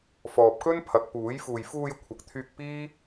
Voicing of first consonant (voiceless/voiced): voiceless